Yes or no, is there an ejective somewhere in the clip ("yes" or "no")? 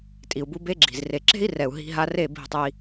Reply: yes